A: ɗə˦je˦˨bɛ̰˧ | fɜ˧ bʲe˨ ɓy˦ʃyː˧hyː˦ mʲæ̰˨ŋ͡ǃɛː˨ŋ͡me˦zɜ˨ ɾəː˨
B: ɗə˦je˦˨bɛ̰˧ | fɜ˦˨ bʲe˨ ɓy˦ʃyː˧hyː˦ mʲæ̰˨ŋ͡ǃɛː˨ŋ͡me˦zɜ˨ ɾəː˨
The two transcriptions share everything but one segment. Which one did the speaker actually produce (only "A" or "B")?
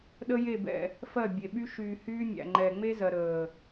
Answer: B